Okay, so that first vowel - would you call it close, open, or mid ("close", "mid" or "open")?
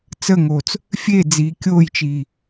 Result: mid